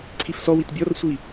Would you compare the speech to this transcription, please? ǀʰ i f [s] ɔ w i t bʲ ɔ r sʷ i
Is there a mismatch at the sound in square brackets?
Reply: no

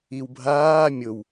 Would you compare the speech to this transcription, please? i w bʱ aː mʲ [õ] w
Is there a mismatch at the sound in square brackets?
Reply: yes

